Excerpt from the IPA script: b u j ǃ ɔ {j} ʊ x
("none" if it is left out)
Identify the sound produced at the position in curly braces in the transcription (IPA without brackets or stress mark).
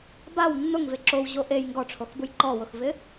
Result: w